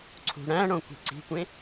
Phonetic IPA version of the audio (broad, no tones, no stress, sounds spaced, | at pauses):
ǀʰ ṳ ɽ æ̃ ɽ õ kʷ i̤ ǀ i̤ kʷ ẽ